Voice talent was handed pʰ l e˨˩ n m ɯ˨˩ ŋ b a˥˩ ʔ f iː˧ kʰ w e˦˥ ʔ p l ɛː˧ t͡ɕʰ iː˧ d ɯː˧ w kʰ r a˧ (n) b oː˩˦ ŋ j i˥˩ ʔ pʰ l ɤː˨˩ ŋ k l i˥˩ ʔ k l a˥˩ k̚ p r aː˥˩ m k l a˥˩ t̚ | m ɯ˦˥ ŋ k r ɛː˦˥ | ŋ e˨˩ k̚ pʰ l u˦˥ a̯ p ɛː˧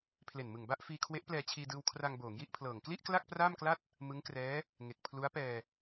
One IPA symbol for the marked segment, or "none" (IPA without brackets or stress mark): ŋ